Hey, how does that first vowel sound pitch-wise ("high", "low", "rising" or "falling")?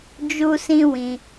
high